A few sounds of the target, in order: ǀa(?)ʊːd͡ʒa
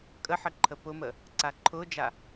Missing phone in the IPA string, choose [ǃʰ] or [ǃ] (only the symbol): ǃʰ